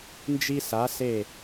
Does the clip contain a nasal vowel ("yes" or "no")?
no